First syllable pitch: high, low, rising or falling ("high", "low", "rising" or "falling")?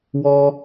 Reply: high